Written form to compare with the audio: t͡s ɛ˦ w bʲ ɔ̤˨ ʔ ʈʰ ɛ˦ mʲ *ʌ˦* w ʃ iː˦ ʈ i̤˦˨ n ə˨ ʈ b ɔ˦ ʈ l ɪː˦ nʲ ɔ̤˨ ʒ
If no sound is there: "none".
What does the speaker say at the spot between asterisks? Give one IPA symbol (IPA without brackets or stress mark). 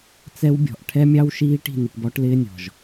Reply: ɑ˦